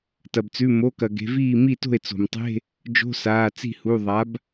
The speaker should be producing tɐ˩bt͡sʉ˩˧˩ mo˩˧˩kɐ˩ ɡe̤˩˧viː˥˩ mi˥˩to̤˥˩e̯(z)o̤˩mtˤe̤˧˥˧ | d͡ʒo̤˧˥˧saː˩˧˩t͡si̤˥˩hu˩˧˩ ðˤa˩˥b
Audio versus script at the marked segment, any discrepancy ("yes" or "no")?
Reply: yes